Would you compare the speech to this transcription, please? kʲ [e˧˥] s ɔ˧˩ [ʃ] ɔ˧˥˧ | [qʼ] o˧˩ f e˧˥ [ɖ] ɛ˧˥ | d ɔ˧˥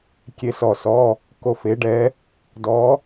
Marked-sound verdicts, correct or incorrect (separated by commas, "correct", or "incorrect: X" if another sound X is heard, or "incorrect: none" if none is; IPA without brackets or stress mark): correct, incorrect: s, incorrect: k, correct